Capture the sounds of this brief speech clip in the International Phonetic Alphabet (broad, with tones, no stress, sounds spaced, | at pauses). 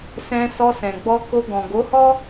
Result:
s ɛ̃˧ s ɔ˧ s ɛ̃˨ ɡ͡b ɔ˧ k o˧ ɡ ɔ̃˨ ɡ o˨˦ h ɔ˦